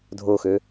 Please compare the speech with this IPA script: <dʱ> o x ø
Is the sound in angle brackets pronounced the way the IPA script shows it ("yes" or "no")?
yes